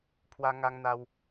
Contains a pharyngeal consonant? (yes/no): no